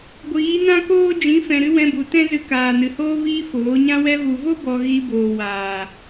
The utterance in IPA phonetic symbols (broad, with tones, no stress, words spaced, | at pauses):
ɡʷiː˨˦nã˦koː˦ d͡ʒĩ˨˦fɛ̃˨ɾɨ˧ wɛ̃˧bu˨tɛ̃˦ zɨ˧kaː˨nɨ˨hoː˦ viː˦foː˨˦ ɲã˧wɛ˧vu˨vo˦ bɔ˧ ɣi˧ boː˨waː˨